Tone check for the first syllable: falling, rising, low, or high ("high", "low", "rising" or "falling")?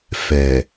low